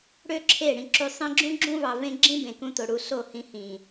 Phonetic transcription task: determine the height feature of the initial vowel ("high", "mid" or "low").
mid